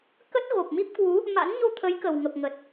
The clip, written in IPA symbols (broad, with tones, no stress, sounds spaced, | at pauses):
k ə˦˥ t̚ ɣ o˨˩ p̚ m i˦˥ p̚ k w u˨˦ | m a̰˧˥ n ɲ o˧ t̪ʰ ə˨˦ j k ə˨˩ w ŋ ə˨˩ p̚ ŋ ə˨˩ t̚